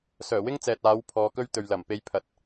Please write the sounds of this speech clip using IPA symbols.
s œː˨˩ w ɪ˥ ŋ t͡s ɛː˨ t̚ aː˨˥ w pʰ ɔː˨˧ k ɵ˥ ɥ t̪ ɵ˨ ɥ l ɐ˨˩ m p e˧ j pʰ ɐ˨˥ t̚

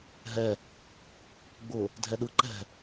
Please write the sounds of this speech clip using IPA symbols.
ɦ ɛ | ɡ͡b ʊ | dʱ ɛ ɗ ɯ ǃ ɛ̤

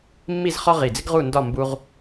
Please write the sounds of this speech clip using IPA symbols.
mː i˥˧ z χ ɒ˥ ʁ i˧˩ d͡z ɪ˥ ɡ ʁ u˥˧ n d ɒ˥˧ m b u˧ ʁ

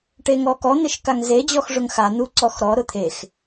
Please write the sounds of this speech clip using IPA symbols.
ʈ e ŋ ɔ k ɔ n̪ ɪ ʃ k a ŋ z e d͡ʑ ɔ x ʐ ʊ ŋ x a n̪ u ǀ ɔ x ɾ ɔ ɾ ʊ t̪ʰ e x

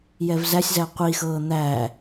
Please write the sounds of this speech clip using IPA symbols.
j ɛ v z æ sʲ z æ qʷ i x ɤː n̪ æ

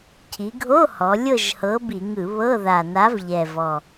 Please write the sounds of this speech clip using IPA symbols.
cʰ i˩˧ ɡʱ o˧˥˧ h ɔ˩˧ lʲ ɤ˦˨ ʒ h ɤ˨˥ b i˧˩˧ ŋ ɯ˧˩˧ β ɤ˧˥˧ ð a˨˩ n a˨˥ v ʎ ɛ˨˩ v ɔ˨˩

